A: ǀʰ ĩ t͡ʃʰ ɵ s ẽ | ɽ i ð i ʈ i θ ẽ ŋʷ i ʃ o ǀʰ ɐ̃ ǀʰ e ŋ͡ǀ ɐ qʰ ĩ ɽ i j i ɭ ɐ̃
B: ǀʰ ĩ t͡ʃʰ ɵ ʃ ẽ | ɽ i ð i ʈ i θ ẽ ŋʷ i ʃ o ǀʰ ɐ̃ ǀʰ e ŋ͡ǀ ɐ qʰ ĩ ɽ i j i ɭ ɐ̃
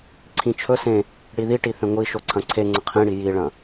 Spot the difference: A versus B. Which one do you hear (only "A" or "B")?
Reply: A